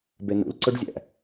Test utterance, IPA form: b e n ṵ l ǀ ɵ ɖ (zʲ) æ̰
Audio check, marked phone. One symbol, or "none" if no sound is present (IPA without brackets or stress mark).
zʲ